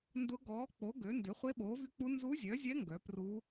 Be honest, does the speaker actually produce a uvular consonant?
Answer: yes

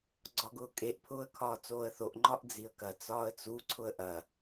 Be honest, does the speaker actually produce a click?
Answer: yes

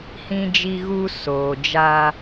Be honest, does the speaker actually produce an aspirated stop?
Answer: no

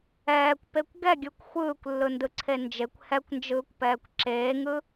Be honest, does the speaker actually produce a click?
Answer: yes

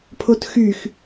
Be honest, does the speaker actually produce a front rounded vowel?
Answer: yes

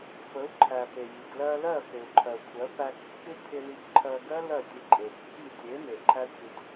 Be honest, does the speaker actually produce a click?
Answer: yes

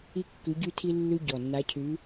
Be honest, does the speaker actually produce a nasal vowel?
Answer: no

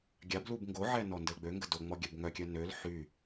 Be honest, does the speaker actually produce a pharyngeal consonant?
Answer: yes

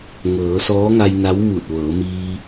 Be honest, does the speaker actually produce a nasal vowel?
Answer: no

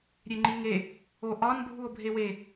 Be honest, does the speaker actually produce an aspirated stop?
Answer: no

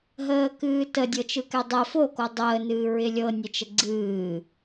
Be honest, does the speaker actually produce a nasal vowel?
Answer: no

